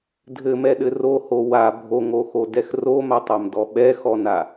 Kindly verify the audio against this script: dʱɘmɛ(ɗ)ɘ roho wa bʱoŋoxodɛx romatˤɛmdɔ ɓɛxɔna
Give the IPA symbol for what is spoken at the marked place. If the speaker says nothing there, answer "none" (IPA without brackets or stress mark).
ɗ